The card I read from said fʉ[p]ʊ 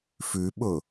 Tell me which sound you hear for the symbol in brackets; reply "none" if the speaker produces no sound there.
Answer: ɓ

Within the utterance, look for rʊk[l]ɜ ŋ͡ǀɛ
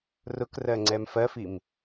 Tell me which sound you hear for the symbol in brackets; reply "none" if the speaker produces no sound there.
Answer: r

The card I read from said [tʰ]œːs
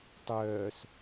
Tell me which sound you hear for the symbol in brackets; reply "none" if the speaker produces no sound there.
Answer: tˤ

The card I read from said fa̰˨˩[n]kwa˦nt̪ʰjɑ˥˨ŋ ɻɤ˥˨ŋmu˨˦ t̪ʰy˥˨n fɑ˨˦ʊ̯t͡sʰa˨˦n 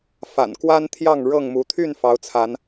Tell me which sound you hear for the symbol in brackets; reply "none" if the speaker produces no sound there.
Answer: n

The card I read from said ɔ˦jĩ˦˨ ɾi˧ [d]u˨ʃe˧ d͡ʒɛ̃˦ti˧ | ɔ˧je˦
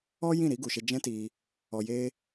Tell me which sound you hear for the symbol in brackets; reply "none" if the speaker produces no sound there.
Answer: ɡ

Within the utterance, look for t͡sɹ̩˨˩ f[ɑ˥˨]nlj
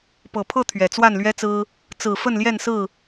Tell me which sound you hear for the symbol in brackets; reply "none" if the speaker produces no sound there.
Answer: ə˥˨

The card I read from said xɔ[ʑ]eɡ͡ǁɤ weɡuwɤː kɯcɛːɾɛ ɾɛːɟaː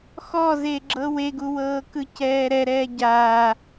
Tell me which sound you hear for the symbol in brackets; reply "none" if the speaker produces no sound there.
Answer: z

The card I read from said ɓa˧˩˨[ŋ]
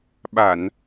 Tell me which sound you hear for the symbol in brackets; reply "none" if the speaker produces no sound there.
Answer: n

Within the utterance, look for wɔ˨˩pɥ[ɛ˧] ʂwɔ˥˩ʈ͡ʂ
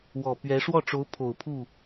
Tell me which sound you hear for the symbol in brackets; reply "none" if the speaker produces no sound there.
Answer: ɛ˧˥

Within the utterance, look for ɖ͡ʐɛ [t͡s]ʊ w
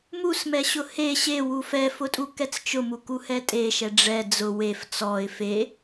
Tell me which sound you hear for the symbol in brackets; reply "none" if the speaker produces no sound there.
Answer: d͡z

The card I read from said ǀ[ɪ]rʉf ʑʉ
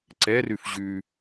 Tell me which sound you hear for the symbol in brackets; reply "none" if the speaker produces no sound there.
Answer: ɛ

